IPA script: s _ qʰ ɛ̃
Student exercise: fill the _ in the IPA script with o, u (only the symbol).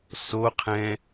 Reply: o